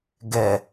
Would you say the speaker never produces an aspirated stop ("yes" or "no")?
yes